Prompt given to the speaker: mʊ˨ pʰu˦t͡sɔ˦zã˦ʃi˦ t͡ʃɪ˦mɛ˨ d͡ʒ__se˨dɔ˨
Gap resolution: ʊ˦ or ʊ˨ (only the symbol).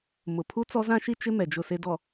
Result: ʊ˨